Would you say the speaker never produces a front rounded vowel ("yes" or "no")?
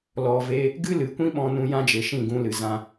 yes